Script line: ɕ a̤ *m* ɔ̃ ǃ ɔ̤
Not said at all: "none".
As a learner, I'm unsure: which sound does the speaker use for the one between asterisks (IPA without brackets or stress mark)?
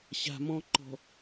m